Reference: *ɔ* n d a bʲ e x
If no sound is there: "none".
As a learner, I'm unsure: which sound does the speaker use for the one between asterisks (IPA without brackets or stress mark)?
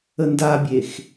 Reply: ə